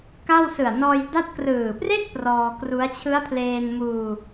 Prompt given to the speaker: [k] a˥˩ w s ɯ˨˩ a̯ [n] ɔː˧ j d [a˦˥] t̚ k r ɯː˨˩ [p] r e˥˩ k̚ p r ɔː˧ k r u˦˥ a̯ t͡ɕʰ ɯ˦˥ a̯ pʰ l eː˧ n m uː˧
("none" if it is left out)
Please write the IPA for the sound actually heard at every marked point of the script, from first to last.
k, n, a˦˥, p

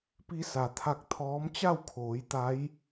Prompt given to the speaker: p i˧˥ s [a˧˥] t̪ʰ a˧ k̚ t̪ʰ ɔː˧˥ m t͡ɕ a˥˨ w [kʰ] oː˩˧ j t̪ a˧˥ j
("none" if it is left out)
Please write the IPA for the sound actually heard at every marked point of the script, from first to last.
a˩, kʰ

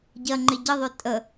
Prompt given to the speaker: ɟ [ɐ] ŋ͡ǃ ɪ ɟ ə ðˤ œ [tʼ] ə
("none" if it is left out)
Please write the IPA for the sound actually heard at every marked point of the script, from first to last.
ɐ, tʼ

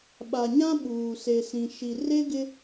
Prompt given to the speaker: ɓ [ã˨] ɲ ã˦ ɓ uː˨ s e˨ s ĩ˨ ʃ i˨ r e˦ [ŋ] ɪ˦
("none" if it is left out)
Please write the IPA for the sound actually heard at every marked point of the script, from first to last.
a˨, ɡ

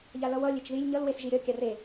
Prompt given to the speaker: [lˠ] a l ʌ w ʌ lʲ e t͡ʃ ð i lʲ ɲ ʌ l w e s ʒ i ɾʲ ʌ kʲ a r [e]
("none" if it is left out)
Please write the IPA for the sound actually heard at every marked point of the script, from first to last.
ʎ, e

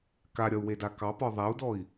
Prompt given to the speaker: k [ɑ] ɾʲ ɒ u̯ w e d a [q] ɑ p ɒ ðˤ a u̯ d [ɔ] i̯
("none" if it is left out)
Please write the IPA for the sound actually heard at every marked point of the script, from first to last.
a, k, ɔ

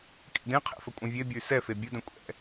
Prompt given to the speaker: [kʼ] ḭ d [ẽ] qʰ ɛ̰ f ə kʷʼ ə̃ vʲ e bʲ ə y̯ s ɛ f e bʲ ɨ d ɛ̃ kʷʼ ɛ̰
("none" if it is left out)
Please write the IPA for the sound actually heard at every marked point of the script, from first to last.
kʼ, ẽ

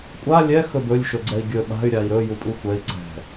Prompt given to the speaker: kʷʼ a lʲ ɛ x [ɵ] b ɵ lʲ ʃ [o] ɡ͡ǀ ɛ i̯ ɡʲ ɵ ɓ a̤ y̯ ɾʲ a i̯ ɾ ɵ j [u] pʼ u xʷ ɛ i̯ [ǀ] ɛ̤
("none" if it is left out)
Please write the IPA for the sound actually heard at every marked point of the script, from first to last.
ɵ, ɵ, u, ǀ

